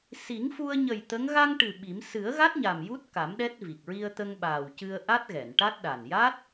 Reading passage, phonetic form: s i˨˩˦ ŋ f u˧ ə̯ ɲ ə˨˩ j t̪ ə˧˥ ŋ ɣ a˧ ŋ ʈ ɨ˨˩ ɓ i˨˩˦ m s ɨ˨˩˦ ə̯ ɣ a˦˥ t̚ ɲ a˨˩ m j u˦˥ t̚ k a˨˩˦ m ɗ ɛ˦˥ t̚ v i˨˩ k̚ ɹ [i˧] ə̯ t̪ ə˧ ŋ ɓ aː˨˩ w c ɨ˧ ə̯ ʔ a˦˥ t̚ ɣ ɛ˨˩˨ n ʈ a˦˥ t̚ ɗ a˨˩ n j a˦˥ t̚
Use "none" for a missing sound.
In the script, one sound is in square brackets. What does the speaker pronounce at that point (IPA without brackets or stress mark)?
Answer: i˧